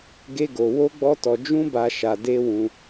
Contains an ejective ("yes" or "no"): no